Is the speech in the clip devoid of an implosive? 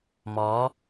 yes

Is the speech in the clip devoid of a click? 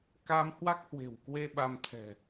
yes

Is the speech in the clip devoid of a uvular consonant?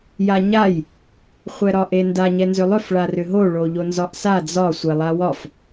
no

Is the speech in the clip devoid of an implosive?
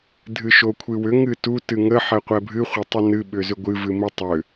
no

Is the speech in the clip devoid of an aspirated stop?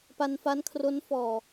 no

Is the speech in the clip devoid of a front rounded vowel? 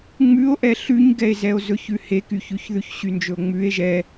no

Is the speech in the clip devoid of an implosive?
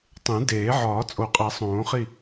yes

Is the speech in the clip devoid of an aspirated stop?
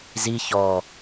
yes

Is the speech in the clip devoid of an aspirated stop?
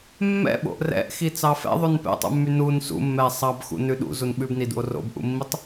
yes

